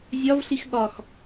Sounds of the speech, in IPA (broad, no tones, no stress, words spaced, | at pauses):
zʲɒvɬix ɠɒx